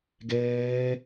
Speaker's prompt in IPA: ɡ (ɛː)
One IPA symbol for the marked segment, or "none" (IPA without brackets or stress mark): ɛː